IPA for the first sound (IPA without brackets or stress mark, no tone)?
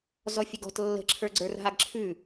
z